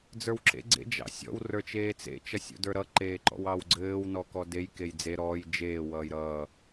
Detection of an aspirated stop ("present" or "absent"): absent